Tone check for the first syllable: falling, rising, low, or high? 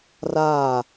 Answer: falling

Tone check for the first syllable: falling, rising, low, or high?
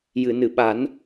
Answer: low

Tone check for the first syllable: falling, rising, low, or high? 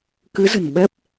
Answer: rising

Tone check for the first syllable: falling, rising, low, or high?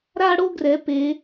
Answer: high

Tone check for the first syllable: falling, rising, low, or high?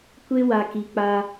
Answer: high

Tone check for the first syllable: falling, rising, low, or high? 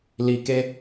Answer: low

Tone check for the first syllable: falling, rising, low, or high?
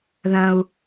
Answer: high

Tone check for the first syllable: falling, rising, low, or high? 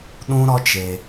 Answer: high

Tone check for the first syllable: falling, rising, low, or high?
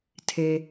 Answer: low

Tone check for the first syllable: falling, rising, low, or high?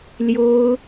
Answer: high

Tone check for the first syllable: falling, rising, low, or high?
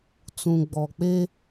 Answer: low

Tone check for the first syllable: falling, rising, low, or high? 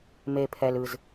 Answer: low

